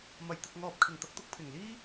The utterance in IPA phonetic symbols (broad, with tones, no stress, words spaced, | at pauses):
mɐ˨˩jt̪ɪ˨k̚ŋɔː˨p̚ kʰɪ˨˩ŋt̪ɐ˨˥k̚ t̪ʊ˨k̚ pʰɪ˨˩ŋliː˥